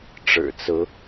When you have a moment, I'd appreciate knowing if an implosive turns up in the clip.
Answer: no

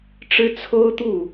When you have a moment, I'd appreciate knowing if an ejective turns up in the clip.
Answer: no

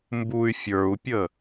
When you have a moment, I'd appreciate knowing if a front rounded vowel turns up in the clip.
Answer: yes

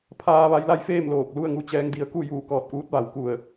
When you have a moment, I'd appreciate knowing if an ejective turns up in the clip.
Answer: no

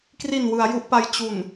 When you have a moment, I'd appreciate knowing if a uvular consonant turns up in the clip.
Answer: no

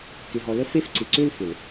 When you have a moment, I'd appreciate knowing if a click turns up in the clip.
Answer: yes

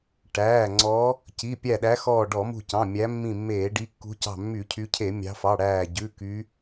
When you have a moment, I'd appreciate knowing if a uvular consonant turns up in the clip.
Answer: no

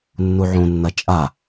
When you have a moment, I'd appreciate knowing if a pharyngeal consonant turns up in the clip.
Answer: yes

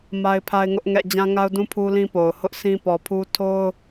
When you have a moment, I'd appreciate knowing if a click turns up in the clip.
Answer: no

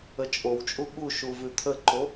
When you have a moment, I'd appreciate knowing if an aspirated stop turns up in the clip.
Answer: yes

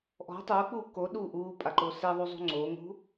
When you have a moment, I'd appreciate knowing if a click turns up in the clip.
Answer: yes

